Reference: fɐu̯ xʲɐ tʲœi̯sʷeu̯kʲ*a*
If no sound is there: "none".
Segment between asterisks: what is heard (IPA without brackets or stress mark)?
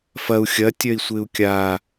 a